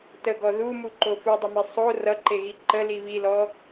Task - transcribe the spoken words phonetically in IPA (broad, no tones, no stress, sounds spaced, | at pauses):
t ə ɡ ɔ ð u m u ǃ o f u dˤ ə m e sˤ o r ʌ ǃ e ɣ i ǃ ə l i β i l ɔ